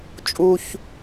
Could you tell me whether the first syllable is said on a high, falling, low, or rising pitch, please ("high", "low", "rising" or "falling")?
low